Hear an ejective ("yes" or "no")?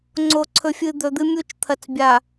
no